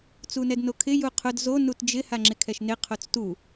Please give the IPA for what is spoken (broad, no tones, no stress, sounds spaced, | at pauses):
t͡s u n ɛ d n o kʰ ɪ j u qʰ ʊ d z o n u t d͡ʒ ɪ h a ŋ͡ǁ ɪ kʰ ɛ ʃ n ɪ qʰ o t͡s t u